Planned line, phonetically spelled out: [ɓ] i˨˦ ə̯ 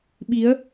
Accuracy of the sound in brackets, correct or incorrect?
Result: correct